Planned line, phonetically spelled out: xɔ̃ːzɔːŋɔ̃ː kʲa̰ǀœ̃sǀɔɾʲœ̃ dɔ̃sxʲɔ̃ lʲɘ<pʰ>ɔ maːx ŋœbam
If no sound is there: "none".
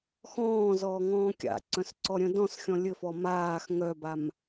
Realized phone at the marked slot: f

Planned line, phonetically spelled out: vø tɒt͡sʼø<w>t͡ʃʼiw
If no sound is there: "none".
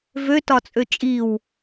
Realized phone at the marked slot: none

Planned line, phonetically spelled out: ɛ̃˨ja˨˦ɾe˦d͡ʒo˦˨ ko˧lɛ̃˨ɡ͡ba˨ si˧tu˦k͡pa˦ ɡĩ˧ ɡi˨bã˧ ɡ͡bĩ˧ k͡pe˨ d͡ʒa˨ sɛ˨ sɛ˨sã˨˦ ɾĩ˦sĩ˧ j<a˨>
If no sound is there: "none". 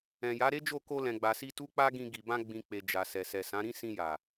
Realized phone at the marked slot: a˨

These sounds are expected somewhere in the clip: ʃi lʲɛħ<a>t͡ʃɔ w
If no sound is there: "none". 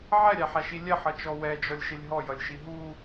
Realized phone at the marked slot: ʌ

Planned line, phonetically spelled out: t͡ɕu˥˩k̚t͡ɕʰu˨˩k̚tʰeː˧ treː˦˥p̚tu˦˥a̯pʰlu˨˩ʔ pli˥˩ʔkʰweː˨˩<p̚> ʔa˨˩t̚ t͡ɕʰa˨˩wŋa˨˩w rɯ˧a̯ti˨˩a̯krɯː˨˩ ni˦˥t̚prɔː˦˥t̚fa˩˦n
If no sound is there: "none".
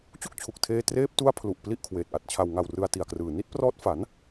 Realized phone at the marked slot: t̚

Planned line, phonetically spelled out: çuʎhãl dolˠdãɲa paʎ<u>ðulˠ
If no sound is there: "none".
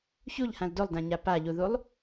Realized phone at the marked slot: u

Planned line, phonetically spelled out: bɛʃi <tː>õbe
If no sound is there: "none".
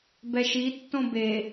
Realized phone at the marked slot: tː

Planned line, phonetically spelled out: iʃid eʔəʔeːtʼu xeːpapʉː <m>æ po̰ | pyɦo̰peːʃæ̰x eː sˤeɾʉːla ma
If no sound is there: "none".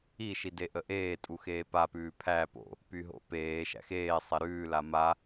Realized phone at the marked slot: pʰ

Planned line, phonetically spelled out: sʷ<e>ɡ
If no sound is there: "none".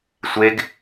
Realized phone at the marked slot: e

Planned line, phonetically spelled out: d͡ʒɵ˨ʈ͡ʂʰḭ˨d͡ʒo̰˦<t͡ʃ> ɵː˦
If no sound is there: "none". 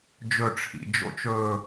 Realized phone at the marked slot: t͡ʃ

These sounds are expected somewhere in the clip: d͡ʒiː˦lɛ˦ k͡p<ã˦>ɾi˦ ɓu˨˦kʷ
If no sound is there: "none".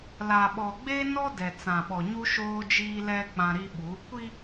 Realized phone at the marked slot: ã˦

